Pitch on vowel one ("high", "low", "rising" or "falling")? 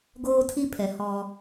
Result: high